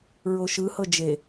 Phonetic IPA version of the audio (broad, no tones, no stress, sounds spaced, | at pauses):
ɹ o ʃ ɯ h ɤ d͡ʒ e